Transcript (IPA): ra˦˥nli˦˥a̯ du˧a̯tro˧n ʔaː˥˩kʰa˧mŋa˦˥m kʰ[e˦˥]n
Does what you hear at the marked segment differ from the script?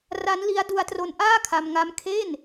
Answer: yes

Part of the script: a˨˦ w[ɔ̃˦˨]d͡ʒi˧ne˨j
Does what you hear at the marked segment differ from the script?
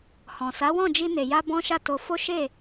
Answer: no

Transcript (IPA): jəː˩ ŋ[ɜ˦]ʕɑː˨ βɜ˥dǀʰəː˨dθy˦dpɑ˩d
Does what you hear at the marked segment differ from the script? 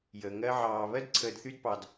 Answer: no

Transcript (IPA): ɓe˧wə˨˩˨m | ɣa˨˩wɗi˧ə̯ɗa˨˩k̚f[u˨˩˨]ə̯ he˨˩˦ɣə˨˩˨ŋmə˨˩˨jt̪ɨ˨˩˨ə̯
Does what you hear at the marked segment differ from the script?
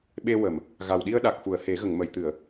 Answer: no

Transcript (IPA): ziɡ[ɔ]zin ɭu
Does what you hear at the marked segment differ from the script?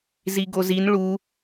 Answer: yes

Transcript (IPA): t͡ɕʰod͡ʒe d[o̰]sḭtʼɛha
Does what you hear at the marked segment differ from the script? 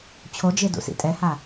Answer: yes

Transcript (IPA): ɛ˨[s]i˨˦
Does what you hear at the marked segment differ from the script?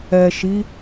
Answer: yes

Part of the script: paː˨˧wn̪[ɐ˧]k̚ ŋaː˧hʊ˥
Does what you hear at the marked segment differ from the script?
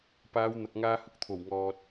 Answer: yes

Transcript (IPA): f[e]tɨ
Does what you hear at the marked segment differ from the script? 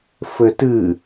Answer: yes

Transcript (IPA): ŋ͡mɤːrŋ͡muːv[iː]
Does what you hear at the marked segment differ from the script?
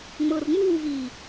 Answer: no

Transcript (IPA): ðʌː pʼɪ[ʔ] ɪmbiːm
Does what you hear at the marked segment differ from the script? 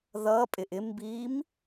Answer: no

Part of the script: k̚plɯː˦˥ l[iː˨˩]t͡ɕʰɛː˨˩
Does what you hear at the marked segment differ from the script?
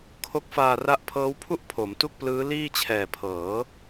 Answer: yes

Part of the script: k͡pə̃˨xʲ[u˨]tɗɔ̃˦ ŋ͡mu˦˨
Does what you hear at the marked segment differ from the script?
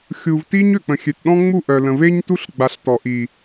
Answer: yes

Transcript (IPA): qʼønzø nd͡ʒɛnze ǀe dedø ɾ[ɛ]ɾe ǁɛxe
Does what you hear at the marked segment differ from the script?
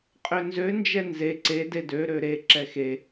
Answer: yes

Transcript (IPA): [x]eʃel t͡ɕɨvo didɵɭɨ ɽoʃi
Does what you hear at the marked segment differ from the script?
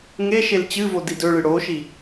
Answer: yes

